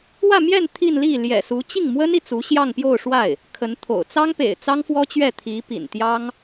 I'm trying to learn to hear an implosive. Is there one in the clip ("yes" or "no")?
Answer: no